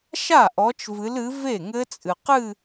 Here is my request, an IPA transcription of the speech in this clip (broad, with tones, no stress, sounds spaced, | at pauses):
ʃ a˥˩ ʔ ɔ˨˦ t͡ʃ v ɨ˨˦ l ɨ˨˦ v e˥˩ ŋ ɘ˦˥ t͡sʼ ɨ˨ q ɨ˥˧